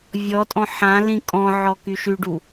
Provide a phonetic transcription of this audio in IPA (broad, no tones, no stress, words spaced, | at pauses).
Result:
vʲɔtʼɔ̃ ħãlĩ kʼɔ̃ʕɔ kyʃyɖu